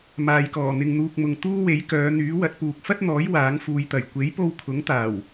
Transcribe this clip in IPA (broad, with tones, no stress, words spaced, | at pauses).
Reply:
maː˨jkɔː˨˩ n̪ɪ˨ŋn̪uː˨k̚mʊ˨ŋ t̪uː˥we˨˥jkœː˨˧ n̪yː˨˥wɐ˨˥t̚puː˨k̚ fɐ˥t̚n̪ɔː˨˥j waː˨˥ŋfuː˨˧jt̪ɐ˨˩j kʷe˨˥jpo˧w kʰʊ˨˥ŋt̪aː˨˩w